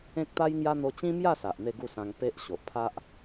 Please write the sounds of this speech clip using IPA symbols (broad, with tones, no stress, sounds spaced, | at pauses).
ẽ˦ k̚ t̪ a˦ j ŋ j a˦ n̪ o˧ t͡ɕ ĩ˦ m j a˥˧ s a˨ ʔ n̪ e˥˧ ɡ u˥˧ s ã˧ ŋ p e˦ ʔ ɕ o˨ ʔ pʰ a˦ ʔ